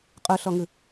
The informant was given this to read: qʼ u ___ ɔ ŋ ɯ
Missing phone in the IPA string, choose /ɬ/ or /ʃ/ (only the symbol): ɬ